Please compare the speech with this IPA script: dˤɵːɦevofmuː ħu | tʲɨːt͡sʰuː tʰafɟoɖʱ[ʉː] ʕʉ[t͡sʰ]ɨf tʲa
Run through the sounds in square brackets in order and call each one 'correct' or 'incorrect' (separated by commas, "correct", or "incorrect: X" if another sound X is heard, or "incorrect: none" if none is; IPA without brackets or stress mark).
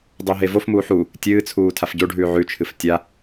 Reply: correct, incorrect: t͡ʃʰ